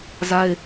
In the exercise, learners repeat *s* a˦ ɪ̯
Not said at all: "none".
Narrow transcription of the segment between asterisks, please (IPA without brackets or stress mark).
z